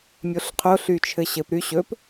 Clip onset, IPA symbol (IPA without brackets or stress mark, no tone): mʲ